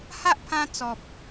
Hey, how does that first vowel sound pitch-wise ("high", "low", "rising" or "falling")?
high